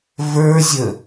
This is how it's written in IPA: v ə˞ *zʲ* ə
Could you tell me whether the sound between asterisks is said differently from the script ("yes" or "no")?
no